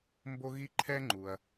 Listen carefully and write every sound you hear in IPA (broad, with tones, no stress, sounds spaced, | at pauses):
m b o˥ ɣ i˥ ǃʰ ɛ˥ ŋ͡ǃ u˩ ɐ̯